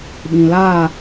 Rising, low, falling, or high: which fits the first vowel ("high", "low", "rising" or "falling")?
low